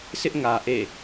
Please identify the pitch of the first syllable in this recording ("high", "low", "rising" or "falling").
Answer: high